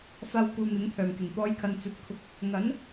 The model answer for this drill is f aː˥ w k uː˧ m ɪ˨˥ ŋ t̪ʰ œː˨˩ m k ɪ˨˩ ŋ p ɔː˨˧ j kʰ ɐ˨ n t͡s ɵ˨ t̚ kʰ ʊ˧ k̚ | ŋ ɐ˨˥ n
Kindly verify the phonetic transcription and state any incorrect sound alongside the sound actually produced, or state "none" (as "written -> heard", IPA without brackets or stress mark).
none